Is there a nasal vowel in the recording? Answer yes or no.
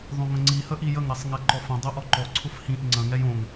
yes